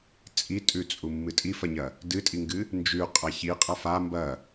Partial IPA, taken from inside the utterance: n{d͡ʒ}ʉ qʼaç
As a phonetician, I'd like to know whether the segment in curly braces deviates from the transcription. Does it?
no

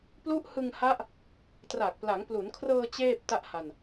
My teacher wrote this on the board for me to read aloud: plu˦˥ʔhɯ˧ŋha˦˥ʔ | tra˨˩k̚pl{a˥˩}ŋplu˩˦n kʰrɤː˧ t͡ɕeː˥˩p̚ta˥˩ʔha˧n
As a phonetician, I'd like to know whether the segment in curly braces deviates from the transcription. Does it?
yes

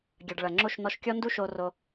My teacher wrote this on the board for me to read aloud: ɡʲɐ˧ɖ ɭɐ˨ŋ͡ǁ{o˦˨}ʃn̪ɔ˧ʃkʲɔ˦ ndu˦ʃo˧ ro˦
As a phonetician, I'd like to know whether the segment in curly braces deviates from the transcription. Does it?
no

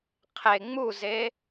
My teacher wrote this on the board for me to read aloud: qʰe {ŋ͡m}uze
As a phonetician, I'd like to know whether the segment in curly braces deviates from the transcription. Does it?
no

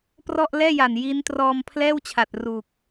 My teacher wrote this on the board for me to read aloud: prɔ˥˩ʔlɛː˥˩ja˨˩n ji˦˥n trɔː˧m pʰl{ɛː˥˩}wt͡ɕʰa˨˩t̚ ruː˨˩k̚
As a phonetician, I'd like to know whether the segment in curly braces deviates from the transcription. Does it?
no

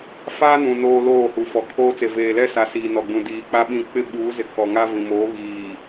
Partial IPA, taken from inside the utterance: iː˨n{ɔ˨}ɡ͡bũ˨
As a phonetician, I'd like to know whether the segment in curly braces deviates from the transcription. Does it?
no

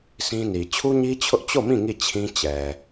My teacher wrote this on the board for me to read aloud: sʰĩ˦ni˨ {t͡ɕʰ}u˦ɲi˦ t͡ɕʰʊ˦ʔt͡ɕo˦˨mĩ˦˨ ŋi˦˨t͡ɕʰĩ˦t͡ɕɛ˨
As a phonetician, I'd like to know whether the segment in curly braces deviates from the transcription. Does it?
no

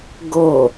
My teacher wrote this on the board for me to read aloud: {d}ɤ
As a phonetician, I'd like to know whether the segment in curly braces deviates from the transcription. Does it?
yes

